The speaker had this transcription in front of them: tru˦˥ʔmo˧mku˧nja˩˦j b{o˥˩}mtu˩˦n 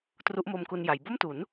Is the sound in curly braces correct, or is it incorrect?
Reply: correct